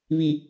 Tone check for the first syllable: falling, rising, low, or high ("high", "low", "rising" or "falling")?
low